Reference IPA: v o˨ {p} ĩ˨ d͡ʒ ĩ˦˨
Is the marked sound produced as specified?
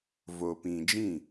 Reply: yes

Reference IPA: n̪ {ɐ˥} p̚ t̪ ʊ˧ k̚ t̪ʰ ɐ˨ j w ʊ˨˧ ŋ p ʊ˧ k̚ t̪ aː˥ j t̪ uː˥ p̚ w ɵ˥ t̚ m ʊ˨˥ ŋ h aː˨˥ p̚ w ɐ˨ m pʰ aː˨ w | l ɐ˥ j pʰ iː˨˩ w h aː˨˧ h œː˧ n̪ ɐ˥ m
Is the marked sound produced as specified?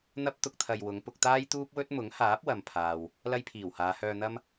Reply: yes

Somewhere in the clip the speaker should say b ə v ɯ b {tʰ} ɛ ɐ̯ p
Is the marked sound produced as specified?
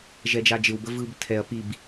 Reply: yes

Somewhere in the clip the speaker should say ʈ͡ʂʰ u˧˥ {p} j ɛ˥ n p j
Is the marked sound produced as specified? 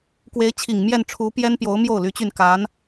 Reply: yes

